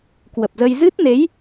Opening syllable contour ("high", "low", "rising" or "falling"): low